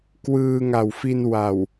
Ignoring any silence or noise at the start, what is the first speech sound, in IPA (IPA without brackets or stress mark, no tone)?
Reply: k